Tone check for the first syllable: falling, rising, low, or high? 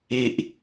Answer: low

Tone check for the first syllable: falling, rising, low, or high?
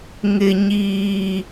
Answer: low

